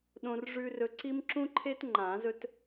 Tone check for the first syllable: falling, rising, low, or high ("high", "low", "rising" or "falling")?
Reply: high